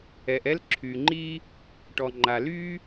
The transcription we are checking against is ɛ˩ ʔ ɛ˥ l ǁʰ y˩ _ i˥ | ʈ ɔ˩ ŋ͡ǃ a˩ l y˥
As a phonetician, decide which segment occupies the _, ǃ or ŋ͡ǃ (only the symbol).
ŋ͡ǃ